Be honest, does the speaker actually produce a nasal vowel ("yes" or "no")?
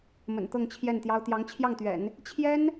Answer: no